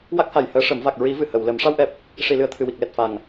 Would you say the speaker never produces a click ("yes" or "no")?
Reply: yes